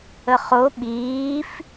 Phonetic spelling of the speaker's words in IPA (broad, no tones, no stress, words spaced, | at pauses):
əχo ɓiːf